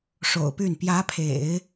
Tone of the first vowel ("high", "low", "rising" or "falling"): low